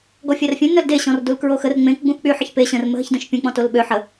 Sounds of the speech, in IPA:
ɡ ɔ fʲ a r fʲ œ̃ n œ l d e ɕ ɔ̃ r d u l k ɹ o x ə r ŋ͡m ẽ k ɡ͡b ũ x k͡p y ħ ə ç p e ɕ ə̃ r m ə ɦ ə ç d ə̃ ʃ pʲ ũ k͡p ɔ̃ t o l ɓ ø ħ ə

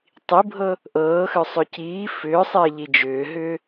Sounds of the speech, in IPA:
tˤ i bʱ ɤ | ʔ ɤː x ʏ sˤ ʏ c iː f ʏː sˤ ɪː ʎ i d͡ʒ ʏː ɦ ʏː

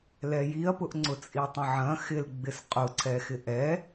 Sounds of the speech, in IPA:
l ɛ j i ɐ̯ p ʊ ʔ ŋ͡ǀ ʊ t͡sʼ i tˤ ɐ̃ ʕ ɐ̃ x ɪ l ɡ͡b ɪ s qʼ ʊ ǀʰ ɛ x ɪ ʔ ɛ

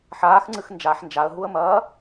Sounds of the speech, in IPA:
ħ aː x ŋ͡ǀ ɨ x n d͡ʒ a ħ n d͡ʒ a ə̯ ɦ u ə̯ m ɐː

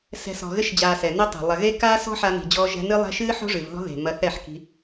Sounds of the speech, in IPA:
s ɛ̤˨ s ɔ̤˨ ɣ ɘ˧ ʃ d͡ʑ aː˨ s ɛ˨ n ɛ˦ tˤ o̤˨ lˠ ɐ˨ ɣ e˦ k aː˦ s ɔ̤˦ ħ a˧ n i̤˨ d͡ʑ ɔ˧ ʒ ɛ̤˧ n ɨ˦ lˠ ɛ̤˦ ʃ ɨː˦ ħ o̤˦ ʐ ɨ˨ v ð ɔ̤˦ ð e̤˨ m ɐ˧ θ ɛ˦˨ ħ k i̤˧

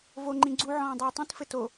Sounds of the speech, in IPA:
v o ŋ͡ǃ ĩ ɡ͡ǀ u ʕ ɔ̃ː dˤ uː tˤ ĩ t f ɘ t o

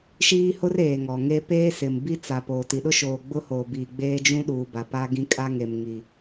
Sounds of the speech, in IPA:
ʃ iː˦ h ʊ˦ r eː˨ ŋ ɔ˨ ŋ e˦ p eː˦ s ɪ˨ m b i˦ t͡s a˨ p o˨ t i˨ ɗ ʊ˦ ʃ oː˨ ɡ͡b ʊ˦ h oː˨ b iː˨ ɡ͡b eː˦ d͡ʒ ũ˦ ɗ uː˨ b a˨ p a˦ ɡ ĩ˦ kʼ a˦ ŋ e˨ m ŋ i˨

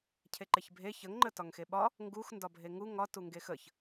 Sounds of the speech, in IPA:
cʰ e ǃ e ç bʱ e ç ə ŋ ŋ͡ǃ ə t ɒ ŋ x e ɓ ɒ | ŋ ɡ u x n d ɒ bʱ e ŋ u ŋ ɒ t u ŋ ɡ e x ə ç

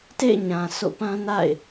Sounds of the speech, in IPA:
t ḛ˦˨ ɪ̯ ɲ ã˨ s o̰˦˨ p ã˦ n a̰˦˨ ɪ̯

